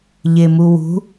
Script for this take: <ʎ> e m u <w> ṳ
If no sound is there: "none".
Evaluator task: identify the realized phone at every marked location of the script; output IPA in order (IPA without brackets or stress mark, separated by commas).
ʎ, w